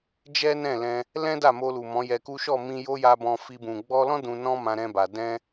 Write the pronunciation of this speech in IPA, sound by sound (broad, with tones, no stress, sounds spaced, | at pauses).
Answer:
d͡ʒ ɛ˦ n ɛ̃˦˨ l ɛ̃˧ | l ɛ̃˦ d a˦˨ m o˧ l u˨ m ɔ̃˨˦ j ɛ˧ k u˦ ʃ ɔ˦˨ m ĩ˧ j o˦ j a˧ b ɔ̃˧ f i˧ b ũ˨ ɡ͡b ɔ˧ l ɔ̃˦ d ũ˧ n ɔ̃˦ m ã˧ ɾ ɛ̃˧ b a˨ d ɛ̃˧